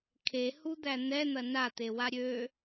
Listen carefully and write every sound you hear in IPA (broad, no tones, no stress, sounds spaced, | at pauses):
kʰ e h u d̪ æ n̪ ɛ n̪ ɐ n a t̪ e w a ɾʲ ø